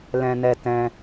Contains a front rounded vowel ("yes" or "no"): no